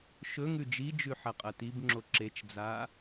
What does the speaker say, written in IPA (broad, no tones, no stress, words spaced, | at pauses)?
ʃɵ ŋʉd͡ʒid͡ʒʉ ħɐqʼɐtibŋ͡ǁo ǁet͡ʃd͡zaː